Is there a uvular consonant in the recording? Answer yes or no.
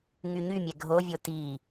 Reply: no